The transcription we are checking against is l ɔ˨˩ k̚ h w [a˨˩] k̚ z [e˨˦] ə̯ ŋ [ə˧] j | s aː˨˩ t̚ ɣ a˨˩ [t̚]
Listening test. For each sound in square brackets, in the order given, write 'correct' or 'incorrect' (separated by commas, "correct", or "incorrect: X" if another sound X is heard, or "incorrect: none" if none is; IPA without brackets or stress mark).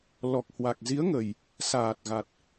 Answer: correct, incorrect: i˨˦, incorrect: ə˨˩, correct